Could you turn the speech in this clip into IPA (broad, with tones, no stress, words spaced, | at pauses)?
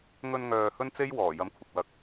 ŋɵ˧nŋœː˨ hɵ˥nt͡se˥j wɔː˨˩jɐ˨˥mkʷʰɪ˨k̚ wɐ˨˥k̚